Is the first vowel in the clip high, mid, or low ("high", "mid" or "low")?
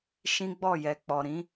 high